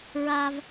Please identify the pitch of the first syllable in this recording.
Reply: high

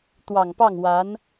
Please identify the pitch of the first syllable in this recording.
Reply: low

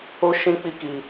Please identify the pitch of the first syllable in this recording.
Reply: high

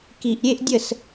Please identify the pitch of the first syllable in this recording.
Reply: low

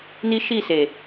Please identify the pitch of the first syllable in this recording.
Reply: high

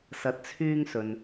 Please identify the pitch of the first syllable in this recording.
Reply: low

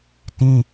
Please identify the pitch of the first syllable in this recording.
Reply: high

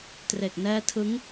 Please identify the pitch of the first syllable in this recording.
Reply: low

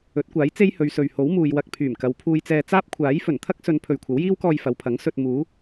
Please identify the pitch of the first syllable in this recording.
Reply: rising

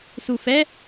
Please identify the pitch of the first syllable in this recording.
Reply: low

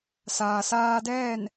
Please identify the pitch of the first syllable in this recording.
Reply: low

